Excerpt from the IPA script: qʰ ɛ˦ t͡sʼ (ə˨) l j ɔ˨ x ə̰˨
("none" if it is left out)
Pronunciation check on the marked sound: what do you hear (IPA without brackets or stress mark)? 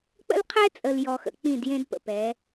ə˨